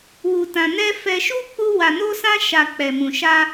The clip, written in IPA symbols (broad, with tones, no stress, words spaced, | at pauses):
wu˧tã˧nɛ˦ fɛ˧ʃu˦ k͡pu˦ wa˧no˦sã˦ ʃa˧ k͡pɛ˧mũ˧ʃa˦